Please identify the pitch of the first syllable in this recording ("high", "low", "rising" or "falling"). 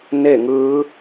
falling